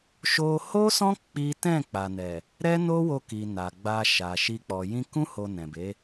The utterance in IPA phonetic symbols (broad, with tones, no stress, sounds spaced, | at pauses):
ʃ o˧ h o˦ s ɔ̃˦ k͡p i˦ t ɛ̃˦˨ k͡p a˨ n ɛ˨ | ɾ ɛ˦ n o˦ w o˧ k i˨ n a˨ ɡ͡b a˧ ʃ a˨ ʃ i˧ k͡p ɔ˨ j ĩ˧ k ũ˦ h o˧ n ɛ̃˨ b e˨˦